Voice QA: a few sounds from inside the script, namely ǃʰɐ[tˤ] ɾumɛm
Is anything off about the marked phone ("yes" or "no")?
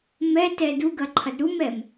yes